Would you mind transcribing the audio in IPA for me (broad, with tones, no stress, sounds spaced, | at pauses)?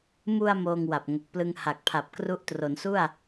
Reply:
m u˧ a̯ m oː˧ ŋ w a˨˩ p̚ ŋ o˨˩ k̚ p l ɯ˧ ŋ h a˨˩ k̚ pʰ a˨˩ p̚ k r u˦˥ ʔ t r o˩˦ n s u˥˩ a̯